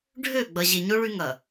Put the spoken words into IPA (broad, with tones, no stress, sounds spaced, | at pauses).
ɖʱ ø˦˨ ɡ͡b ɐ˨ ʑ e˨ ɲ o˦ ɭ y˦ ŋ ɐ˨